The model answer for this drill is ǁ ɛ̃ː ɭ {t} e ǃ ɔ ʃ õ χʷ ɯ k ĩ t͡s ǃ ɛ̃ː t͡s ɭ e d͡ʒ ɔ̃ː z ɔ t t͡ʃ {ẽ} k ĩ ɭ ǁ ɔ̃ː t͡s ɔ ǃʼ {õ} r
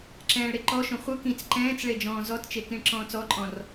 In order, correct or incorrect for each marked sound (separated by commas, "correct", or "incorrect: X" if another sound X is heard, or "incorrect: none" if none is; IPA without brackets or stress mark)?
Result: incorrect: ɾ, incorrect: e, incorrect: ɔ̃